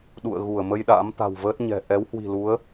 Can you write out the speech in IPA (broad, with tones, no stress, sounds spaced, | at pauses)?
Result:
ɗ ṵ˧˨ ə̯ ɣ u˧˩ ə̯ m ə˧ j ɗ a̰ː˧˥ m t̪ a̤˨˩ w v əː˦˥ t̚ ɲ ɛ̤˨˩ ʔ ɛ˨˦ w h w i̤˨˩ l u˨˦ ə̯